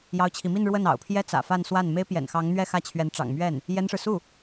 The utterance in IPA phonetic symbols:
j ɑ˥ ʊ̯ t͡ɕʰ i˧˥ m i˥˧ n ɻ w ə˥˩ n ɑ̰˨˩ ʊ̯ pʰ j ɛ˥ t͡s ä̰˨˩ f a˥˧ n s w a˥˩ n m e˥ ɪ̯ p j ɛ̰˨˩ n x ɑ˧˥ ŋ n̪ ɥ ɛ˥˧ x ä˥˩ t͡ɕʰ ɥ ɛ˧˥ n ʈ͡ʂ ɑ̰˨˩ ŋ m ɥ ɛ˥˩ n | j ɛ˥ n ʂ ɻ̩˨ s u˥˩

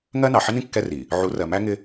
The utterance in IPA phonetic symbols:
ŋ ɜ˦ n ɑ˨ ħ ɪ˦ n ĩ˦ kː ɛ˦ r i˨ | ʕ u˨˦ r ɜ˨ m æ˦ ŋ ɪ˦

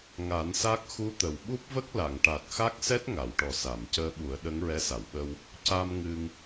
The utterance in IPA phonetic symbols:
ŋ a˨˩˦ n s a˦˥ k̚ x u˧˥ t̪ ə˨˩ w ɓ u˦˥ p̚ v ə˦˥ k̚ l a˨˩˨ ŋ ʈ a˨˩ t̚ x a˦˥ k̚ s ɛ˦˥ t̚ ŋ a˨˩˨ w ʈ ɔ˨˩ s a˨˩˨ m c əː˧ ɓ u˨˩˦ ə̯ ɗ ə˧˥ ŋ ɹ ɛ˧˥ s a˨˩˨ w ɓ ə˧ w | c a˧ m ŋ ɨ˧ ŋ

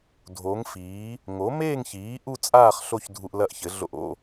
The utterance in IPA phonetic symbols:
dʱ o˩˥ ŋ f iː˩˥ | ŋ o˩˥ m eː˥˨ ŋ ç iː˩˥ ʔ u˥˨ t͡sʼ aː˥˨ χ ɬ o˥˨ ç dʱ u˧ ʔ l ɐ˥˨ ʔ ç ɘ˩˥ ɮ o̰˧ ʔ o̰˥˨

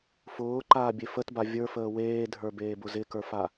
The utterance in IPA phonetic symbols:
f ʊː ǃ aː bʲ e f ə t b a vʲ ə˞ f əː w eː dʱ ə˞ b eː b ʊ z ɪ k ə˞ f a

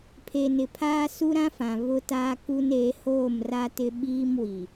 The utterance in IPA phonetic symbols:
pʰ e˨ n ɪ˨ pʰ aː˦ s u˦ ɾ ã˦ f ã˨ β ʊ˦ t aː˦ k u˦ n eː˨˦ h oː˦˨ m r a˦ t ɪ˦ ɓ iː˦ m w i˨

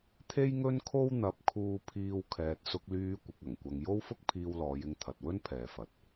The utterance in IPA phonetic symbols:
t̪ʰ e˥ j ŋ ɵ˥ n kʰ o˥ w n̪ ɐ˨˥ p̚ kʰ uː˧ pʰ iː˧ w kʰ ɛː˨ t̚ s ʊ˧ k̚ l yː˧ kʷ ɪ˧ k̚ ɐ˨˩ ŋ kʷ ɐ˧ ŋ j o˥ w f ʊ˥ k̚ pʰ iː˧ w l ɔː˨˧ j ɪ˧ ŋ t̪ʰ ɐ˨ t̚ w ɵ˥ n pʰ ɛː˨ f ɐ˨ t̚

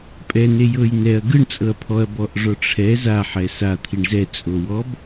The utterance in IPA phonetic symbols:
pʼ ɛ n e j ɤ j n ɛ ɐ̯ ɡ ɯ ɳ t͡sʼ ɤ ɐ̯ pʰ ɔ ɐ̯ b ɔ ʔ ʐ ɔ ʈ͡ʂʰ ɛ z a ħ ɛ s a t̪ʰ i ɳ z ɛ t͡sʼ o w ɔ b

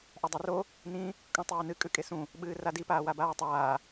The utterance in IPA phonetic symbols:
ʔ a dˤ u r o | n ĩ | kʼ õ tˤ ɨː n ɨ kʼ ʉ kʼ e s ũ | ɓ ɨː r a d i p aː w a b aː tˤ aː

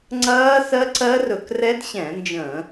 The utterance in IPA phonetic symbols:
ŋ͡ǀ ɐː˦˥ s ɜ˦˥ ǀ ɜ˦˥ r ɵ˧˩˧ k r ɛ˦˥ d ɕ ɛ̃˧˩˧ n d͡ʒ ə̃˧˩˧

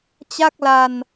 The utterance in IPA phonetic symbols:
t͡ɕ a˥˩ k̚ l a˧ n

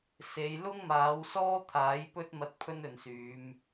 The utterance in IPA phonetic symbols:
s e˨˧ j l ʊ˥ ŋ m aː˨˧ w s ɔː˥ t̪ʰ aː˨˥ j p ɵ˥ t̚ m ɐ˧ t̚ pʰ ɵ˥ n ɵ˨ n s yː˨˧ m

